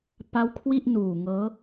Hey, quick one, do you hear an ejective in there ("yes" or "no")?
no